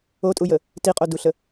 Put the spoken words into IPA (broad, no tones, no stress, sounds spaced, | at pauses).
o tʼ u j ə | t i qʼ o d u ɬ ə